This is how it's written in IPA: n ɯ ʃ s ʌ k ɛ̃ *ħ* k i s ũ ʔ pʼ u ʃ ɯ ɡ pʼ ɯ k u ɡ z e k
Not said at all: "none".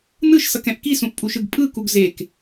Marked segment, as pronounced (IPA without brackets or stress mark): ʔ